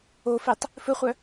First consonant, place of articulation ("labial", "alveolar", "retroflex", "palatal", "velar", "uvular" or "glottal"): labial